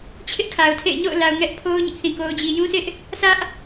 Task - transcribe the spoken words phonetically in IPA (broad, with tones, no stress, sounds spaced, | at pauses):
t͡ɕʰ ɪ˦ ʔ kʰ a˨ ʊ̯ tʰ ḛ˦˨ ɪ̯ ɲ o̰˦˨ ʊ̯ l a˨ ʊ̯ ŋ ɛ˦ ʔ pʰ o˦ ʊ̯ ɲ ɪ˦ ʔ θ ĩ˨ k o˨ ʊ̯ d͡ʑ i˨ j ũ˦ sʰ ɪ˦ ʔ | sʰ ä˦ ʔ